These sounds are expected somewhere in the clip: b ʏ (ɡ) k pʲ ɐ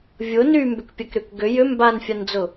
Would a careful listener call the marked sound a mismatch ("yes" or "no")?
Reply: yes